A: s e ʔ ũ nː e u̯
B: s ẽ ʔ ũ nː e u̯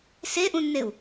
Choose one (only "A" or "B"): A